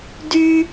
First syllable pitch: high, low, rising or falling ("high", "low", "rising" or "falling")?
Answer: high